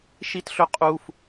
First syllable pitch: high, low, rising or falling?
high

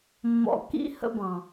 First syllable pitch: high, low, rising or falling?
low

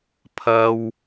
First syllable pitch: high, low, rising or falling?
high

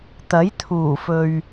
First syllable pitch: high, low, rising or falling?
rising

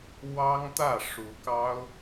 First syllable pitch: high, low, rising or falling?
high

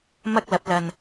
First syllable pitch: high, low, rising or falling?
high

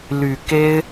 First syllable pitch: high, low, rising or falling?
low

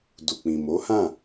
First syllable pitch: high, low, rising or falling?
low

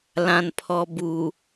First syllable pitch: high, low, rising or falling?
low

